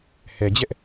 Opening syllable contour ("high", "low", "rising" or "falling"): low